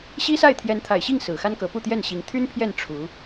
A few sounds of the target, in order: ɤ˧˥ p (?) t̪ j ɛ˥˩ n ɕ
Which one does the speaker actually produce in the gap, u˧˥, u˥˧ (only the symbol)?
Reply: u˥˧